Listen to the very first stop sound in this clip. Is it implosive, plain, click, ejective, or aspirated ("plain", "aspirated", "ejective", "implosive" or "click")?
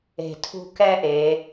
aspirated